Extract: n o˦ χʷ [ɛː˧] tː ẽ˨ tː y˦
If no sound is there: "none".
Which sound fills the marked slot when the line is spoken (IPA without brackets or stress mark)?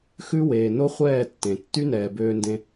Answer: ɛː˦˨